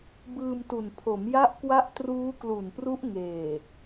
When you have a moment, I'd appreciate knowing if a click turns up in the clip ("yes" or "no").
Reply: no